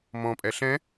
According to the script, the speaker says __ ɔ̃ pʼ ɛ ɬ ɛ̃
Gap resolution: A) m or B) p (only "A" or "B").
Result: A